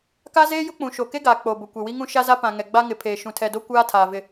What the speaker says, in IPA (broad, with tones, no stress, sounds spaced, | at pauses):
k a˦ z eː˦ j ʊ˦ k͡p ũ˨ ʃ o˨ k e˦ ɡ aː˨ k͡p o˨ b ʊ˨ kʷ e˨ w i˦ ŋ ũ˦ ʃ a˦ z a˦ p ã˨ ŋ ɛ˨ ɡ͡b a˦ ŋ ɪ˨ pʰ eː˨ ʃ ũ˨ tʰ ɛ˨ d o˦ kʷ aː˦ tʰ aː˨ v ɪ˨